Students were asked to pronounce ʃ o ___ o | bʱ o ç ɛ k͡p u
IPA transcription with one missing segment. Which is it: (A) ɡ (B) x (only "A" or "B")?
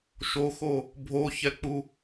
B